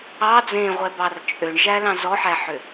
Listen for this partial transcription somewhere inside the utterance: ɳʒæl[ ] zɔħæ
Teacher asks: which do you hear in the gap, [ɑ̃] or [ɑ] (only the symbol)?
ɑ̃